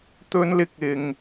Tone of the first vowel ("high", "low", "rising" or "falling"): high